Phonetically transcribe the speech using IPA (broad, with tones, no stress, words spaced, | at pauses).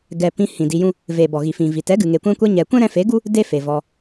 ɡɛ˨ pĩ˧hĩ˨ di˧jũ˦ | ve˨bɔ˨ ɣi˨fĩ˨vi˨ tɛ˨˦ɡɨ˨ŋe˨ kʷɛ̃˧kʷɛ˧ ɲɛ˨ kʷɛ̃˦ɾɛ̃˧fe˨˦ɡu˦ | de˦fe˨vɔ˧